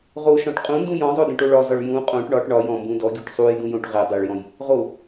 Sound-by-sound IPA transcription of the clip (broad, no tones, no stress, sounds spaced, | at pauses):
ʁ o ʃ ɔ̃ ʈ qʼ ũ n d ũ j ɔ̃ zˤ o d ẽ ʈ o ɭ ɒ z ɒ ɭ j ũ qʼ õ ʈ ɳ ɒ ʈ ɳ ɒ j ɔ̃ m b ũ d ɔ ɡʲ o ʈ sˤ u j d ũ j õ ʈ ʁ e dˤ e ɭ j ɔ̃ j | ʁ o